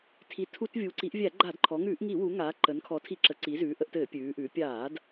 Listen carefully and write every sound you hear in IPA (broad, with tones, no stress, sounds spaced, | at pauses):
tʰ i˩˧ tʰ u˧˩˧ t vʲ u˩˧ ǀ i˩˧ ʔ vʲ æ˧˩˧ ɡ͡ǃ a˧˩˧ d ǃʰ ɔ˩˧ ŋ ʉː˧˩˧ ʔ ŋ i˧˩˧ w u˩˧ ŋ aː˩˧ ǃ ə˩˧ n kʰ ɔ˩˧ tʰ i˧˩˧ ǁ ə˩˧ ǀ i˩˧ z ʉː˩˧ ʔ ə˩˧ ʔ t ɘː˧˩˧ pʲ ʉː˩˧ ʔ ʉː˩˧ pʲ aː˧˩˧ d